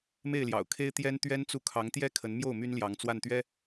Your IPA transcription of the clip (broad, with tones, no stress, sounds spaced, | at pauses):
m e˥˩ ɪ̯ l j ɑ̰˨˩ ʊ̯ kʰ e˥ ɪ̯ t̪ j ɛ˥ n t̪ ɥ ɛ˥ n t͡s u˥˩ kʰ ɑ˧˥ ŋ t̪ j ɛ˥ kʰ ə˧˥ n m j o˥˩ ʊ̯ m y˥ n l j ɑ˧˥ ŋ t͡s w a˥˩ n t̪ ɥ ɛ˥